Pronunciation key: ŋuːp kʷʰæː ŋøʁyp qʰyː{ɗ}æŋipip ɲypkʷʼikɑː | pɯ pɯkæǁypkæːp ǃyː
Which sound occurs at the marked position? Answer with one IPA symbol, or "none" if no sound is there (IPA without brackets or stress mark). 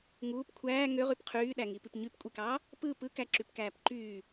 ɗ